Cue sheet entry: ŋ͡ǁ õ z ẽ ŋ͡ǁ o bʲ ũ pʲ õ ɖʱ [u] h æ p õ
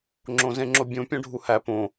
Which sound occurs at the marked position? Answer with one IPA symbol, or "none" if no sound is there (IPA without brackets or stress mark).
u